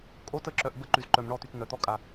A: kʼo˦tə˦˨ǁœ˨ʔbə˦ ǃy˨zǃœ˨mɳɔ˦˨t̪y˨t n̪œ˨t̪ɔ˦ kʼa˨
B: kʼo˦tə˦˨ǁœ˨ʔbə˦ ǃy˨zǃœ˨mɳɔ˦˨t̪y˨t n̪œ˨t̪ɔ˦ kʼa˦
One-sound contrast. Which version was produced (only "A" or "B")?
A